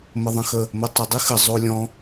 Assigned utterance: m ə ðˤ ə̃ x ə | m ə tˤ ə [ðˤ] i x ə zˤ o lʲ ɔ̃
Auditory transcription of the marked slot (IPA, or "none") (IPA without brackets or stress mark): dˤ